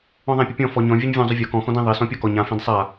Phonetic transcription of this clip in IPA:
ɔ̃ ðˤ æ̃ pʲ ʊ pʲ ɔ̃ f ɔ ɲ ɔ̃ vʲ e ɲ vʲ ɔ̃ zˤ ʊ vʲ ɔ k ɔ̃ x ɔ̃ d ẽ ðˤ e s ɔ̃ pʲ ɒ k ɔ ɲ ã f ẽ d sˤ a

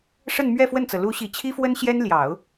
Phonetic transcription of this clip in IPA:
ʂ ə˥˧ n m ɥ ɛ˥˧ f w ə˥˩ n t͡s ɤ˩ l u˧˥ ɕ i˨˩ t͡ɕʰ i˥ f w ə˥ n ɕ j ɛ˥ n l j ɑ˨˩˦ ʊ̯

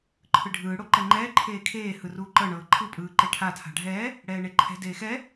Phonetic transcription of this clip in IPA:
ǃʰ ɯ ɖʱ ɯː ɽ o ǃ ɛ ŋ͡ǃ ɛː ǃʰ eː kʰ eː h ɯ r uː ǃ ɤ ɳ ɤː ǃʰ ɯ pʼ ɯː ǃ e ʈʰ a tʰ a̤ ɖʱ ɛː | ɽ ɛː ɳ e ǃʰ ɛ̤ d eː x ɛ

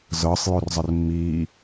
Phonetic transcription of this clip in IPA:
z ɤ sˤ j o r zˤ ɘ r mː iː

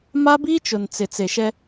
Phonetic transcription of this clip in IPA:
m a˦ b iː˦ t͡ʃ ʊ˨ n t͡s ɪ˨ t͡s e˨ ʃ ɛ˦

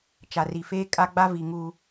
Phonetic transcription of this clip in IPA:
t͡ʃ a˨ r i˨ f eː˦ kʼ a˦ ɡ͡b a˦ v i˨ ŋ uː˨

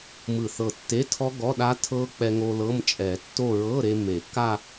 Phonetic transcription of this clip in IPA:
m ɯ˧˩ θ ɤ˧˩ tː e˧˥˧ tʰ ɔ˦˥ ɡ ɔ˧˥˧ ɗ a˦˥ tʰ ɤ˦˥ k͡p ɛ˧ ŋ o˧ l ɤ˧˥˧ m t͡ʃʼ ɛ˨˩˦ tː o˥˧ ɹ ɤ˧˥˧ ɾ e˧ m e˨˩˦ kː a˥˧

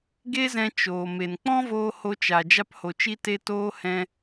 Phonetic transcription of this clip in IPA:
ɡ e˦ z ɛ̃˧ t͡ʃ oː˨ m e˨ n k͡p ɔ̃˦ v oː˧ h o˧ t͡ʃ a˨ d͡ʒ a˧ p h o˨ t͡ʃ i˧ t e˧ t oː˧ h ɛ̃˧

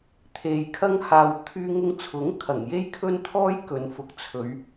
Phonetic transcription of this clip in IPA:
t̪ʰ e˧ j kʰ ɐ˥ ŋ h aː˧ w t̪ʰ yː˧ ŋ ʊ˧ ŋ t͡sʰ ʊ˨˥ ŋ kʰ ɐ˨˩ ŋ j e˥ j kʰ ɵ˥ n t̪ʰ ɔː˥ j k ɵ˨˧ n f ʊ˨˥ k̚ t͡sʰ ɵ˨˧ ɥ

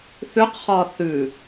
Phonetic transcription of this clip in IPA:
θ ʉ q χ ɒː θ ʉ

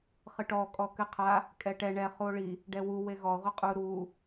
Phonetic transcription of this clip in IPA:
χ ɨ ʈ ɔ kʼ ɔ k ɨ qʰ a | kʼ ɛ ʈ ɛ ɳ ɛ χ u o̯ ɭ i | ɖ ɛ w u w e ɣ ɔ ʁʷ ɨ qʼ u ɾ u

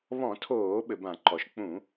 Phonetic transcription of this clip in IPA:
β ɔ̃˧˩˧ tʰ oː˧˩˧ ɓ ɘ˩ b ã˧˩˧ ǃ ɔ˩ ʃ k͡p ũ˧˩˧

